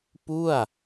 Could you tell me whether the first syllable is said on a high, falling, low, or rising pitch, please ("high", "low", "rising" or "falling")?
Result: falling